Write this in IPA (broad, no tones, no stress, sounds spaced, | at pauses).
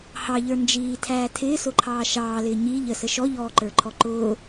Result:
h ɑ ʎ ə˞ n d͡ʒ iː tʰ æː tʰ ɪː s ʊ ǃʰ ɑː ʃ ɑː l ɪː ɲ i ʎ ə s ə ʃ ɔ ʎ ɔː ǃ ə˞ ǃʰ ɔ ǃ ʊː